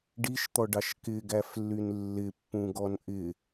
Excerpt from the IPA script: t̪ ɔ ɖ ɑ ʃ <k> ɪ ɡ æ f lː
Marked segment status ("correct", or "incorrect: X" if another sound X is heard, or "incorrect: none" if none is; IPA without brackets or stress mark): correct